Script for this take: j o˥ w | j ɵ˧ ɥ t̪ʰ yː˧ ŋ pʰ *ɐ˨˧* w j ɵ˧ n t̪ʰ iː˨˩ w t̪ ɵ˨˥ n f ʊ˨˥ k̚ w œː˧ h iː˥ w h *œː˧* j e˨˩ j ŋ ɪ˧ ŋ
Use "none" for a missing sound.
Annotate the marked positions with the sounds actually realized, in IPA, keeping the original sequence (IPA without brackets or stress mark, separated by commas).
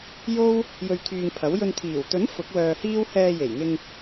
ɐ˨˥, ɛː˧